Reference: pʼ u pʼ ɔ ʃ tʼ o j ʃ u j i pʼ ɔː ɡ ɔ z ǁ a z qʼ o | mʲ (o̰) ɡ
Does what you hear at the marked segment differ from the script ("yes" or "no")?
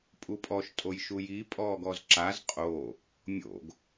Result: no